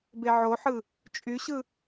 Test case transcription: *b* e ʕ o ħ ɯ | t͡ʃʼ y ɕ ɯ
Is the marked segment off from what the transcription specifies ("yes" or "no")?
no